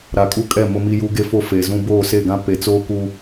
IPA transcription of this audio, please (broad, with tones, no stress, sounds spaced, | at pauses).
ɾ a˨ kʼ u˦ kʼ ɛ˦˨ m ʊ˦ m i˦ j u˦ ɡ e˦ f o˦ f eː˨ z ũ˦ b oː˦˨ s e˦˨ ɡ ã˦ p e˨ t͡s oː˦ k u˦